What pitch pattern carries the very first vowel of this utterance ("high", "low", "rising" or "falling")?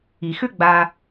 low